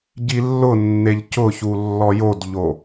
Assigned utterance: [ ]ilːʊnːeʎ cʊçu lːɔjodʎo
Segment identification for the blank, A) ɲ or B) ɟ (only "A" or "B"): B